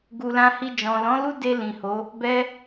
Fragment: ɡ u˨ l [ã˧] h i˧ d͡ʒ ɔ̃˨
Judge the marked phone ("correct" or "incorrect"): correct